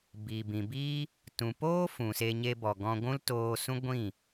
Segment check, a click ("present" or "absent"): absent